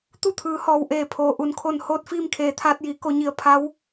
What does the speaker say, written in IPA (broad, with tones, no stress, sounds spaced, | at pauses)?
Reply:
t̪ u˥˨ t̪ʰ ɯː˩˧ h ɔː˩ w ʔ eː˧˩ pʰ oː˩ ʔ u˩ n kʰ o˧˩ n h oː˧ t̚ f iː˧ m kʰ eː˩ t̪ʰ aː˧ t̚ j iː˩˧ k o˩˧ ɲ i˩˧ ə̯ pʰ a˧˥ w